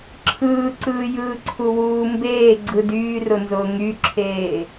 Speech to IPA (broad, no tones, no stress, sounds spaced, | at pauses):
ǁʰ ɯː ǀ ɯː j ɯː ǀʰ u w uː m b eː ɡ͡ǀ ɯ d yː r ʊ n z ʊː ŋ y ǁʰ eː